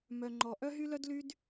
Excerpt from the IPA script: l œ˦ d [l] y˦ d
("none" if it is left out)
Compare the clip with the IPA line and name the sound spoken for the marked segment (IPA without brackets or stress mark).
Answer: l